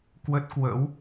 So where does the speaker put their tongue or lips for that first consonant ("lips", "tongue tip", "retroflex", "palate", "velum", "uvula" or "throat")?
velum